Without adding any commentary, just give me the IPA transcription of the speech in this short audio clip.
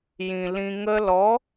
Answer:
jĩ˨ lĩ˧ŋə˦ lɔ˨˦

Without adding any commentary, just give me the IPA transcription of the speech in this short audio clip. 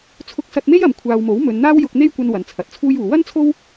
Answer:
t͡sʰʊ˧k̚sɐ˧t̚me˥j ɐ˨m kʷʰaː˨wmo˨˥wmɵ˨˧n n̪aː˥wjʊ˧k̚n̪e˥jkʷɐ˧n wɐ˨˧nt͡sʰɐ˨˥t̚t͡sʰuː˥juː˨˧ wɐ˥n t͡sʰo˥w

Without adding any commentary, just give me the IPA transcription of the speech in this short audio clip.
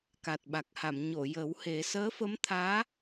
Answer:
ka˨˩t̚ɓa˨˩k̚ha˨˩˨m ɲo˨˩˨ jə˨˩˦whe˨˩˦ səː˧˥fə˧˥mt̪ʰaː˧˥

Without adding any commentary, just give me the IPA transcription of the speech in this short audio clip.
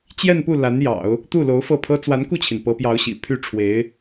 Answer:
t͡ɕjɛ˥˧npu˥˩ la˧˥njɑ̰˨˩˦ʊ̯ | t̪u˥˩lo˧˥ʊ̯fɤ˥˩pʰɤ˥ t͡swa˧˥nku˥˩t͡ɕʰi˩n pɤ˧˥pjɑ˧˥ʊ̯ɕḭ˨˩ pʰy˥˩ ʈ͡ʂʰwe˧˥ɪ̯

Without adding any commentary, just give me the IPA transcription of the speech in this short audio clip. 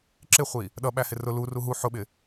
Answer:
ǁɪχʷi | ɗʌɓæ hɪrʊ luru ɦu ħʊɓɪ

